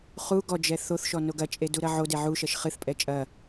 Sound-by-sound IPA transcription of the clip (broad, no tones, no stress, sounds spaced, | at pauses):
χ u ɡ ɔ d͡ʒ ɛ θ o θ ʃ ɔ n o ɡ ɐ t͡ʃʼ e d u ɾ ɐ ʕ o d e ʕ u ʃ ɐ ʃ χ ɨ θ pʼ ɛ t͡ʃʼ ɐ